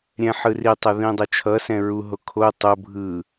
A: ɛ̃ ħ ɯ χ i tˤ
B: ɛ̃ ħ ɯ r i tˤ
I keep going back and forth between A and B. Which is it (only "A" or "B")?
B